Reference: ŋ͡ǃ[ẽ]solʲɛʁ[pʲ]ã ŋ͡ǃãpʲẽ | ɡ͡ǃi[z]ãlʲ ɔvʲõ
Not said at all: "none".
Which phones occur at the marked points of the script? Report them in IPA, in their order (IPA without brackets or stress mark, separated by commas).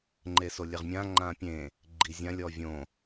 e, mʲ, zʲ